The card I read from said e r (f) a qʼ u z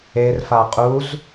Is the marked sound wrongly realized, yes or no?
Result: no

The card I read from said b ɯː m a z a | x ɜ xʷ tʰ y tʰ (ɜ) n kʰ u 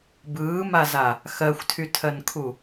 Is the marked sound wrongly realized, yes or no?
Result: no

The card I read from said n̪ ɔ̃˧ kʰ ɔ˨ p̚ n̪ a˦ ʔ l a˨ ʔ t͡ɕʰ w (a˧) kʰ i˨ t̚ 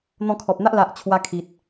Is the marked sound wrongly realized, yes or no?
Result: no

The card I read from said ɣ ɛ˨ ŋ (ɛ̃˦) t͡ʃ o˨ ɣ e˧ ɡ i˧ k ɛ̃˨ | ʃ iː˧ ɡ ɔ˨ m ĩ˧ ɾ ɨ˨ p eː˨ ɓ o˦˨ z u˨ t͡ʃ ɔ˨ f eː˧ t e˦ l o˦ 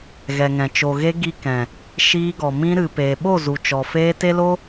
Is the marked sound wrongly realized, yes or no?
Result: yes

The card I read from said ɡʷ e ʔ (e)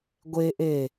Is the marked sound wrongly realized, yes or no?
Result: no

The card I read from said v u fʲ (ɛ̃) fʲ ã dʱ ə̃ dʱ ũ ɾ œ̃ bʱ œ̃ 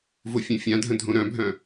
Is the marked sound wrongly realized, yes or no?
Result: yes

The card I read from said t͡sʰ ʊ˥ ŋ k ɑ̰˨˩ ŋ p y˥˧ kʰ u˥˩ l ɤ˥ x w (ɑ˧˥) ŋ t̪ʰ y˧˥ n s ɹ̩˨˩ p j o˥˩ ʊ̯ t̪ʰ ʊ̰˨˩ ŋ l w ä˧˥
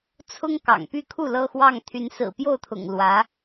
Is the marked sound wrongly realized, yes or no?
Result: yes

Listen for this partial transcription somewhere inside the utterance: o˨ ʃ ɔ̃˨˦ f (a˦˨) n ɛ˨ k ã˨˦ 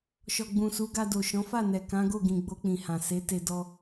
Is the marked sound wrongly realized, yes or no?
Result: no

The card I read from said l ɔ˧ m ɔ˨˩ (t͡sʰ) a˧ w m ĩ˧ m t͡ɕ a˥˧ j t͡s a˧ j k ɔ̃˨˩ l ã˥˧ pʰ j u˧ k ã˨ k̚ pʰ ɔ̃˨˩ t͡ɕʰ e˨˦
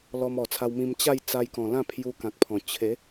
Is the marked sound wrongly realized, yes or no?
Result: no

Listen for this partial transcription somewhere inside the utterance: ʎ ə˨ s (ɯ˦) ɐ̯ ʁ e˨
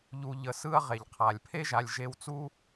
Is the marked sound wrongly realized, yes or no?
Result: yes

